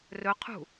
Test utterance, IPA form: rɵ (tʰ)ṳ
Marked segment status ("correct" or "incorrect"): incorrect